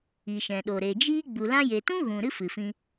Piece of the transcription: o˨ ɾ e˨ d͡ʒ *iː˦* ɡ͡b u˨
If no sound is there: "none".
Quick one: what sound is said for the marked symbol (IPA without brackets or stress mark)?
iː˦